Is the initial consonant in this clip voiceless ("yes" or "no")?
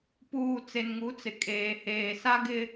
yes